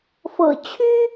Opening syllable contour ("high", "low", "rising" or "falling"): low